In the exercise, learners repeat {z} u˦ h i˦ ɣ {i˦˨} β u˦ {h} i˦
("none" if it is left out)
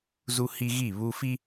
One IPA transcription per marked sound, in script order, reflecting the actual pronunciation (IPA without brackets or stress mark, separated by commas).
z, i˦˨, f